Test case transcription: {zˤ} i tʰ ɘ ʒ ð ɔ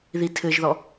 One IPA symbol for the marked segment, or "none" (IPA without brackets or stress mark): ð